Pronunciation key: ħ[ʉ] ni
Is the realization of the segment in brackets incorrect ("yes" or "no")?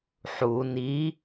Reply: yes